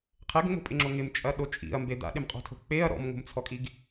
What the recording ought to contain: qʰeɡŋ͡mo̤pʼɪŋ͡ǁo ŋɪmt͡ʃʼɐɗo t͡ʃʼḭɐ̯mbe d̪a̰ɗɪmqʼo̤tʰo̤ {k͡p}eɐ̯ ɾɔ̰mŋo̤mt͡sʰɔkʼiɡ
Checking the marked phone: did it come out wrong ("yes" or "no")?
no